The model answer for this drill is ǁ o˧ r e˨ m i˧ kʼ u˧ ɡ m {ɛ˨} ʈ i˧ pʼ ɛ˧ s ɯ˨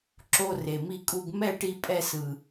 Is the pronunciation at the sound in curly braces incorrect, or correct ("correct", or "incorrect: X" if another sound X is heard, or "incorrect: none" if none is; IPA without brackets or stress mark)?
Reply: incorrect: ɛ˦˨